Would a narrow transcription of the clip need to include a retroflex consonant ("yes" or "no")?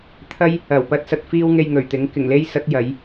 no